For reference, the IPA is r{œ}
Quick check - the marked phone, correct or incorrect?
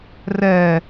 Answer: incorrect